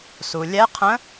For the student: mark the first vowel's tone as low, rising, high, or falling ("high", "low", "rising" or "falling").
low